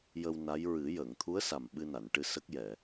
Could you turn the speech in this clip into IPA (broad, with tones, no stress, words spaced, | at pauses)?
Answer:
jə˧wna˧˥j ɹɨ˨˩˦ jəː˨˩˨ŋt̪ʰu˧˥ə̯sa˨˩m ɓɨ˧na˨˩˨nʈɨ˧ sə˦˥k̚jɛ˨˩˨